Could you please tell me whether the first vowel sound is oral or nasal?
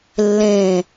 nasal